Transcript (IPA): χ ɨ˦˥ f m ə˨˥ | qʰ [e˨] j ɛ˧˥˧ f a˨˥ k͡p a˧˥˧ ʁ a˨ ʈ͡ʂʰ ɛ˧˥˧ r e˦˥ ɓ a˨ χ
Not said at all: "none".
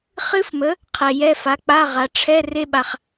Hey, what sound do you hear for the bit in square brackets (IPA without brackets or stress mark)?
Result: ɛ˨